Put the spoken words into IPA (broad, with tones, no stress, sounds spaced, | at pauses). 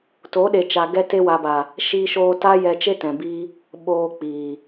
t o˨˦ ɗ e˨ t͡ʃ a˨ ɡ ɛ˧ t e˧ w a˨ b a˨ | ʃ iː˧ ʃ oː˧ t a˦ j ɛ˧ t͡ʃ e˦ t ɛ̃˨ b i˦ | ɓ oː˧ k͡p iː˨